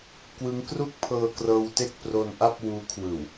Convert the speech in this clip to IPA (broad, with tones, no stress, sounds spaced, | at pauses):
k w ɯ˦˥ ŋ k r u˥˩ k̚ pʰ ɤː˧ k r ɤː˧ w t e˥˩ k̚ p r o˧ n ʔ a˥˩ p̚ w uː˦˥ kʰ w ɯː˨˩ w